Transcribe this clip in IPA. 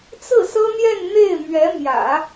t͡s ɹ̩˥˩ s ɤ˥ n̪ j ɛ˥˧ n n̪ e˥˩ ɪ̯ m ɥ ɛ˧˥ m j ä̰˨˩˦

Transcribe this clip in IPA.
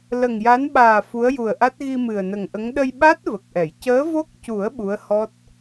l ə˨˩ ŋ j a˧˥ n ɓ aː˨˩ f u˧˥ ə̯ j u˨˩ ə̯ ʔ a˦˥ t̚ ɣ i˧ m ɨ˨˩ ə̯ n ə˨˩ ŋ ʔ ə˧˥ ŋ ɗ ə˧ j ɓ a˦˥ t̚ v ə˨˩ k̚ ʔ ɛ˨˩˨ j c əː˧˥ v o˦˥ k̚ c u˨˩˦ ə̯ ɓ u˧˥ ə̯ h ɔ˦˥ t̚

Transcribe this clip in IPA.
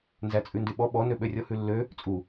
n z æ t͡sʼ ʉ n d y ɓ ɔ ɓ ɔ n ø ɓ ø rʲ ɔ h ʉ lː ø | t͡sʼ u

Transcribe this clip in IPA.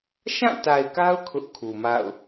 ʃ ã˦˨ t a˨ ɪ̯ k a˦ ʊ̯ kʰ ʊ˦ ʔ kʰ u˨ m a̰˦˨ ʊ̯

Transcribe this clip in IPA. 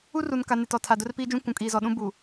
u˦ r u˨ n k a˨ n ɪ˨ t ɔ˨ tʰ a˨ d ʊ˦ r p iː˦ d͡ʒ ũ˦ kʷ ũ˨ kʼ iː˨ z ɔ˨ ɗ ũ˦ b u˨

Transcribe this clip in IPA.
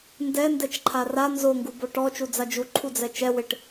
n d ɛ n d ɛ t͡ʃ ǃʰ a r a n z o ŋ ɡ u b o ʈ ɔ t͡ʃ u d͡z a d͡ʒ u ǃʰ u d͡z ɛ t͡ʃ ɛ w ɪ ʈ

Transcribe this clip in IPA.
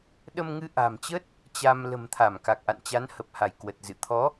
ɗ ə˧ m ŋ ɨ˧ ʔ a̤˨˩ m t͡ɕ ə˦˥ t̚ | t͡ɕ a˧ m l ə̤˨˩ m t̪ʰ a˧˩ m k a˨˩ k̚ ʔ a̰˧˨ n t͡ɕ a˨˦ n h ə˨˩ p̚ h a˧˩ j k w ə˨˩ t̚ z ɨ̰˧˨ t̪ʰ ɔ˨˦

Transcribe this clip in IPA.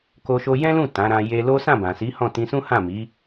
k o˧ ʃ o˧ j ɛ̃˦ l ũ˦˨ t ã˨˦ ɾ ã˧ j e˧ l o˦ s ã˦˨ b ã˨ s i˨˦ h ɔ̃˦˨ t ĩ˧ s ũ˦ h ã˦˨ m i˨˦

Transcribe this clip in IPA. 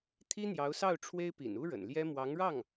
t̪ʰ i˥ n̪ j ɑ˧˥ ʊ̯ s ɑ˥˩ ʊ̯ ʈ͡ʂʰ w e˥ ɪ̯ p ḭ˨˩ n u˥ ɻ ə̰˨˩ n l j ɛ˥ m w ɑ˧˥ ŋ ɻ ɑ˥˩ ŋ

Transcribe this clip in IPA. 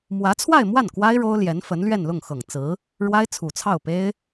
m w ä˧˥ t͡sʰ w a˥˧ ɪ̯ m w a˥˩ n k w a˥ ɪ̯ ɻ o˥ ʊ̯ l j ɛ˧˥ n f ə˧˥ n l ɥ ɛ˥˧ n l ʊ˥˩ ŋ x ɤ˨˩ ŋ t͡s ɹ̩˧˥ | ɻ w a˥ ɪ̯ t͡sʰ u˨˩ t͡sʰ ɑ˥˩ ʊ̯ p e˥ ɪ̯

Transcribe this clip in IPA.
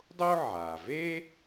dˤ o˥ ʕ a˩ v e˥

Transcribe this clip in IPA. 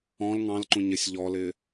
ɔ̃ l ŋ ɑ̃ l ǃ ũ ɲ ɪ sʲ ʎ ɔ l ɪ

